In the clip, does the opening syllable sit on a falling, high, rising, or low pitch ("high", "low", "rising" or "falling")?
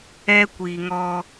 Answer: high